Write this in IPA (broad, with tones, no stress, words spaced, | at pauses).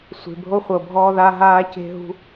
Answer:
sʷe̤˩bʱo˧χʷɤ˩bʱɔː˧ ða˧ ɦaː˧ce̤˧ɦṳ˧